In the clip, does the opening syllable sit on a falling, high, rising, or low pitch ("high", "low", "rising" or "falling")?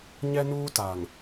high